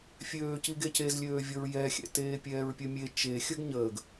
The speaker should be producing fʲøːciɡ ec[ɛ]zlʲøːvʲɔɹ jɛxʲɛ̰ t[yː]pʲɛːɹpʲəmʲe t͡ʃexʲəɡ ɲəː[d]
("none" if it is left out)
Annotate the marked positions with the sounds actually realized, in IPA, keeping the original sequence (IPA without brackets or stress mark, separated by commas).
e, eː, ɡ